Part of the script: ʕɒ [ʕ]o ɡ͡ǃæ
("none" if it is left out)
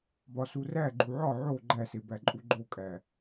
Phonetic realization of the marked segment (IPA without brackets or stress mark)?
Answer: ʕ